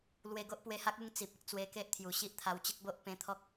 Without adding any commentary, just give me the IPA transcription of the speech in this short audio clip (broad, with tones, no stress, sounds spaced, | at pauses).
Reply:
l w e˧ ɡ o˦ ʔ p w e˧ h a˦ k̚ u˥˧ ŋ t͡s i˨ p̚ e˨ k̚ t͡s w e˧ k e˦ ʔ t̪ʰ j u˨˩ ɕ i˦ ʔ t̪ʰ a˧ w t͡ɕ ə˦ k̚ b o˦ ʔ p ẽ˧ t̪ʰ ɔ˦ k̚